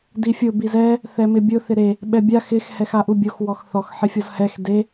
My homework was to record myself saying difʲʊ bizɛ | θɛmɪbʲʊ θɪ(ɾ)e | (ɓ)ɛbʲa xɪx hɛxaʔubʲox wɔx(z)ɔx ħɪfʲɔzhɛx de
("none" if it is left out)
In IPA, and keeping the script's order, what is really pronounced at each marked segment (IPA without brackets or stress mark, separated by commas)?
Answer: ɾ, ɓ, θ